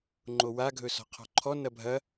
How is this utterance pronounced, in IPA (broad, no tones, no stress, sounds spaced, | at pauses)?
ŋ͡ǃ o w a ɡʱ ɵ s ɔ̤ qʰ ɔ̤ ǃʰ ɔ n ɐ bʱ ɐ